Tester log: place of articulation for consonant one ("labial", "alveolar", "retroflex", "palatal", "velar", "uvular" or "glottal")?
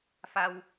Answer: labial